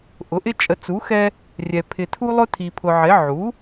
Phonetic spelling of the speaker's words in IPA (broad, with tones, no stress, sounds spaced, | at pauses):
ʔ ʊ˩˥ ʔ ɪ˦ t͡ʃʼ ə˩˥ t͡s u˩˥ x ɛ˦ | rʲ ɛ˨ pʰ ɪ˨ tʰ u˦ lˠ ʊ˦ tʰ i˨ pʰ ʊ˨ ʕ ɪ˩˥ ʕ u˩˥